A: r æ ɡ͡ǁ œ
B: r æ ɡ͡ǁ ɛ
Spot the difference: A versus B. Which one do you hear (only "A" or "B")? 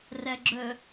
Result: A